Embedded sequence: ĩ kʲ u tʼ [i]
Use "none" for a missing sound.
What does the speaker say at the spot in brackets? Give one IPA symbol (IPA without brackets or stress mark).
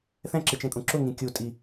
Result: i